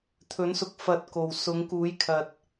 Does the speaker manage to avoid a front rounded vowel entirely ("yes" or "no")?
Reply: yes